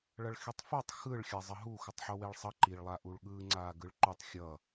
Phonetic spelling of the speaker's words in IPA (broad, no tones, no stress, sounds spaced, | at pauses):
ɭ ʌ ɭ x i tˤ f o tˤ x ɯ ɭ xʲ a zˤ ʌ ɦ u x u tˤ ħ o w e ɭ sˤ ʌ ǃ i ɭ lˠ a ʔ u ɭ ɠ ɯ ŋ͡ǀ aː ɡ ɯ ɭ ǃ u tˤ xʲ ʌ